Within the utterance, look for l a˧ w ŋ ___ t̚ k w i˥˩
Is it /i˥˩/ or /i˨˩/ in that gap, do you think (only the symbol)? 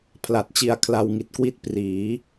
i˨˩